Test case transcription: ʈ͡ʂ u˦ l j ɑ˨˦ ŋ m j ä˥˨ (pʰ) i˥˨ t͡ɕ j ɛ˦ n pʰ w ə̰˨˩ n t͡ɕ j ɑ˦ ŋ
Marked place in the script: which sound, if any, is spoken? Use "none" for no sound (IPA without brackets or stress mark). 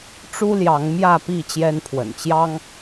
p